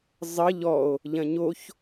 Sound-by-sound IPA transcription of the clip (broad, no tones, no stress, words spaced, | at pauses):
zˤə ʎɔo̯ | ʎɐ̃ɲoç